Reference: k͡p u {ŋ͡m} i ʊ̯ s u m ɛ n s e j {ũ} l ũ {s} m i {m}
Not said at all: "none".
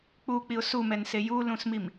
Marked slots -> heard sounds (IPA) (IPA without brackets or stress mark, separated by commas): k͡p, u, s, m